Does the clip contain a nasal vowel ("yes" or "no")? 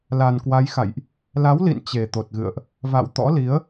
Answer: no